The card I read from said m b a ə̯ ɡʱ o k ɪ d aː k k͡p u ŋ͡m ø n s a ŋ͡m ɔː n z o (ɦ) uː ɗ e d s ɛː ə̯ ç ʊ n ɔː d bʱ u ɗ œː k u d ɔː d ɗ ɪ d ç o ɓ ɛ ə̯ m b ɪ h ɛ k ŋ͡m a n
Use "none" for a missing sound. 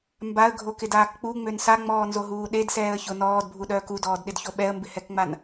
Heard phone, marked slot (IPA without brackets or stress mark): ɦ